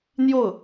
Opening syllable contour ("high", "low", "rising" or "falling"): falling